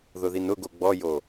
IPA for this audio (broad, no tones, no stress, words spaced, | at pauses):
ðʊðinʊɡo ɡ͡bɔjo